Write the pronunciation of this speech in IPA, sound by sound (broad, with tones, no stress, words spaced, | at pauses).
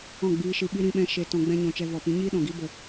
ɔ̃˦˨ɡ͡biː˧ʃɨ˧ɓi˦ ɾĩ˦ɓɛ̃˦ ʃe˧ tɔ̃˧ɡ͡bɛ̃˦ɲɔ̃˧t͡ʃɛ˧ vɔ˨pĩ˨˦ɲiː˦ ɗɔ̃˨ɡi˧ bə˨